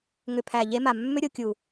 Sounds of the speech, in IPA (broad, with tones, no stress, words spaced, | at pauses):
ŋʏ˨pʰæ˨ ʎe˦ma˨ mːʏ˦ɾʲo˨kʲu˨